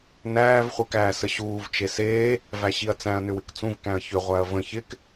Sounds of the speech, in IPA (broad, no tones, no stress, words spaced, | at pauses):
næːv χʷekæːsəɕuːv t͡ʃeseː | væɕiɐ̯t͡sæ̃ɐ̯ nʏwɪkt͡sũv kæ̃ɐ̯çʏ ʁʷæɐ̯və̃ çɪk